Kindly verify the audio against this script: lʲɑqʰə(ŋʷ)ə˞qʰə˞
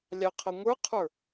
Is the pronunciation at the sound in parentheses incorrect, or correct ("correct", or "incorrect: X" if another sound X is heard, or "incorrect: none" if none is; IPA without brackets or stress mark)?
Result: correct